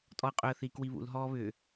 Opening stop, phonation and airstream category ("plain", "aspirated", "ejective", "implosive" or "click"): ejective